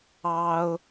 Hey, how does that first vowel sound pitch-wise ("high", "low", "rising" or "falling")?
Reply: high